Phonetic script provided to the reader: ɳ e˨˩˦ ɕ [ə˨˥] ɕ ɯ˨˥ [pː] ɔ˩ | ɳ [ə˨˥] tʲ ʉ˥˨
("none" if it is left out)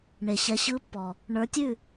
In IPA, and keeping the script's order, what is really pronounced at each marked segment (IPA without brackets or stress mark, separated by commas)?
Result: ɛ˨˥, pː, ə˞˨˥